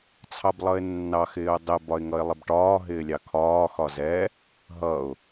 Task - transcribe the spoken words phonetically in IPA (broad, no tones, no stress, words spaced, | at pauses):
t͡sʰɑblˠʌɪ̯nːɑ xɪːʊ̯dˤɪ bɒɪ̯ŋʌɪ̯lˠɪbʈɒː ɦɪːlʲɑkʰɒː xɒzɛ | ɦʌʊ̯